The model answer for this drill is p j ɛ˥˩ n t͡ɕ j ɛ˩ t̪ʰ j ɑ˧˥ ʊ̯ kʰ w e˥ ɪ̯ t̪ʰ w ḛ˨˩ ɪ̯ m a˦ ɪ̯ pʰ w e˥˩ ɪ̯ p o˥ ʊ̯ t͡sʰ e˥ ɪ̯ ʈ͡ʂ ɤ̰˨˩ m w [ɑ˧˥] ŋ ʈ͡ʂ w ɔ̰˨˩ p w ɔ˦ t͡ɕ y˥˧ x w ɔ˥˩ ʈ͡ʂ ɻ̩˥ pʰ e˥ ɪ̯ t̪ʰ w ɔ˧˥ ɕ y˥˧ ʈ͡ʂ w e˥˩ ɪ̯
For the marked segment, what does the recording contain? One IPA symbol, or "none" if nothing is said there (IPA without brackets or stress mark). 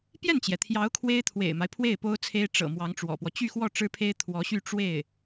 ɑ˧˥